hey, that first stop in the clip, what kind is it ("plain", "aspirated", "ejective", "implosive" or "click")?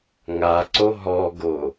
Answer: click